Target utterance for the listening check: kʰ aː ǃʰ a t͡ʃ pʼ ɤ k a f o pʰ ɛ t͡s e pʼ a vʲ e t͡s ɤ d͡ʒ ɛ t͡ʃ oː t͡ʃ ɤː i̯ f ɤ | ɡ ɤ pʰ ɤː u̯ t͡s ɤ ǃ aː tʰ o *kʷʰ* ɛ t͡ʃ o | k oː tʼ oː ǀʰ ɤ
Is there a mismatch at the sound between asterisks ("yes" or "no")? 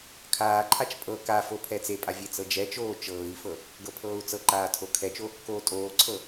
yes